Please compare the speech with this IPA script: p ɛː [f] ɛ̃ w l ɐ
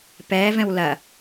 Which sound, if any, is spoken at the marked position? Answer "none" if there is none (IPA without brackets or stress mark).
v